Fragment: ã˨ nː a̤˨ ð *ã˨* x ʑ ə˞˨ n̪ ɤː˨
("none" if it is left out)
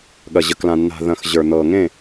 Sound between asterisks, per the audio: ɐ̃˨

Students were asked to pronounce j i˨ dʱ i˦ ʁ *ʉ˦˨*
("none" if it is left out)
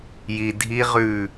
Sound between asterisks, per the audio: ʉ˦˨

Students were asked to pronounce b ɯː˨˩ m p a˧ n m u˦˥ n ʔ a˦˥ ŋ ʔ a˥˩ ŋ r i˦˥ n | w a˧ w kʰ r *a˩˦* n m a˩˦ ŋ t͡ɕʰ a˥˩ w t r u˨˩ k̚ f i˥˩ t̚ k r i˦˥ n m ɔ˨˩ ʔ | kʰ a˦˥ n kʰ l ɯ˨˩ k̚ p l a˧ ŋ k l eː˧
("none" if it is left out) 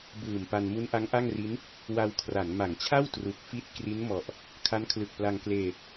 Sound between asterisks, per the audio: a˩˦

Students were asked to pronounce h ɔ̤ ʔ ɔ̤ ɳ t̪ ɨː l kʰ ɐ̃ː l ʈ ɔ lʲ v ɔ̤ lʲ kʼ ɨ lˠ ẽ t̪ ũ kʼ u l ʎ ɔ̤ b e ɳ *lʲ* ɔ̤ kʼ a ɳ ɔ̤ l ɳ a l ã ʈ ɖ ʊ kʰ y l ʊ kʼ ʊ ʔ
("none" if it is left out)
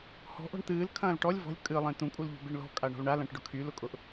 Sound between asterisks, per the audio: l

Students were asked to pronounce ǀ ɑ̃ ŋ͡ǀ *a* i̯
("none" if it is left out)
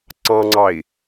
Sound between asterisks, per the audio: ɑ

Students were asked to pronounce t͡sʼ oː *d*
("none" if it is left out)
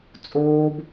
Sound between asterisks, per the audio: b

